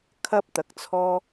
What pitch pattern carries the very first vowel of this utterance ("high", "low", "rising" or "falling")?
high